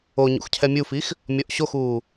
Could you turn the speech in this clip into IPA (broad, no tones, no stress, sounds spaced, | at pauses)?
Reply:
o ɲ ṵ x cʰ ɛ mʲ u f i x | mʲ ɔ ʔ ɕ o x uː